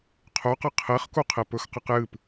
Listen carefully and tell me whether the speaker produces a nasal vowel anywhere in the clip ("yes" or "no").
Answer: no